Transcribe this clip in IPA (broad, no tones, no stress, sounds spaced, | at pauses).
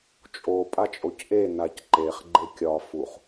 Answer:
t͡ʃʼ o pʼ a t͡ʃʼ o c ʔ e n a c ǃ e χ ɡ͡ǃ e kʲ ɒ f u χ